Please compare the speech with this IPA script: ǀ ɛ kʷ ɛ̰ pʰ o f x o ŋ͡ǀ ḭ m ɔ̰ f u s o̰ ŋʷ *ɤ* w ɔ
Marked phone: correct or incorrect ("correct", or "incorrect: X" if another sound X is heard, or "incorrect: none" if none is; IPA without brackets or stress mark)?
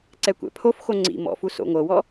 correct